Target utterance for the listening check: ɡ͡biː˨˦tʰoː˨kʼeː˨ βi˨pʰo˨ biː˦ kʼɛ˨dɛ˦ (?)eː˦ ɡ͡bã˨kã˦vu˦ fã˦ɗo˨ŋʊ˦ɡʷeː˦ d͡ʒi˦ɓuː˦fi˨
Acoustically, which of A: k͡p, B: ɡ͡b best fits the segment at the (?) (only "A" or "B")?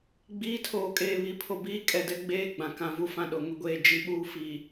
B